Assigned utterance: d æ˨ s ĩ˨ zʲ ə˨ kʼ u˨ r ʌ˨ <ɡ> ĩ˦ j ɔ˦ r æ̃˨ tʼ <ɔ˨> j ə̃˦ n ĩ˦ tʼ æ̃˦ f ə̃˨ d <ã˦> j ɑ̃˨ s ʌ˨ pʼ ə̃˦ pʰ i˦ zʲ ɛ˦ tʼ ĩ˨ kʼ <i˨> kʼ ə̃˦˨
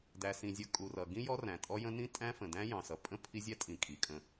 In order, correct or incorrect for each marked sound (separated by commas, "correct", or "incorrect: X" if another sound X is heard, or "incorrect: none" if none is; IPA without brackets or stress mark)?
correct, incorrect: ɔ˦, incorrect: æ̃˦, correct